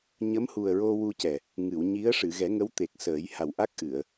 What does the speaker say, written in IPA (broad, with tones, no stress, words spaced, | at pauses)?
ɲə˧˥mhu˨˩ə̯ ɹo˧wu˧cɛ˨˩ | ŋɨ˨˩˨wɲi˧˥ə̯ ʂɨ˨˩˨ɣɛ˨˩˦ŋə˧˥w t̪e˨˩k̚səː˨˩˦j ha˨˩wʔa˦˥k̚ʔɨ˨˩˨ə̯